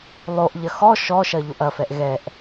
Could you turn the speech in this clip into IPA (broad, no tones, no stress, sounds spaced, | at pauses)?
lˠ o ʔ ʎ ɐ x ɔ ʃ ɔ ʃ ɐ ʎ o ʔ ɐ f ɛ ʔ ɣ ɛ ʔ